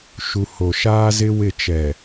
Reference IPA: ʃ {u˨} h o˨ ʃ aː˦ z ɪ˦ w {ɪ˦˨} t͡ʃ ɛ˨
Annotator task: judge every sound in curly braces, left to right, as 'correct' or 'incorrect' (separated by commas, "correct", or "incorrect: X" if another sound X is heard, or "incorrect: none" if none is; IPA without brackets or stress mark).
correct, correct